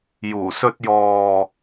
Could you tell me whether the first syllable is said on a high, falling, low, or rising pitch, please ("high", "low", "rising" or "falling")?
low